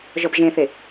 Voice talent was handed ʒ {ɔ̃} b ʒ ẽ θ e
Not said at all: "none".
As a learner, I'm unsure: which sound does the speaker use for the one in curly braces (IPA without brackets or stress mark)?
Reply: ɔ